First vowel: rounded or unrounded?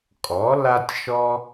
rounded